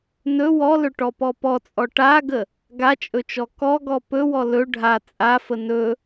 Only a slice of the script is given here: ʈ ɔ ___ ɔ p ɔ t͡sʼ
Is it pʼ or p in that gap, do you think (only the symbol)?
p